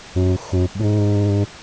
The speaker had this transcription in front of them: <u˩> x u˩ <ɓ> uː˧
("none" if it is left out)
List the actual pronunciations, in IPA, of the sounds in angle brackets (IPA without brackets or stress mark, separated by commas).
u˩, ɓ